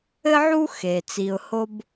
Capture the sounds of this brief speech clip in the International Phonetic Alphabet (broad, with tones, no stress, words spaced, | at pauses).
ɘ˦ʕu˦ xe˩ t͡si˨ʊ̯ho˥b